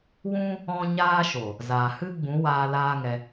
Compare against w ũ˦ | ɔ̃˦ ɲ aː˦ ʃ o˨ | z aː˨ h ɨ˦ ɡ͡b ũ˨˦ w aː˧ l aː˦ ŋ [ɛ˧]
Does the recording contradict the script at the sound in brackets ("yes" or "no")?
no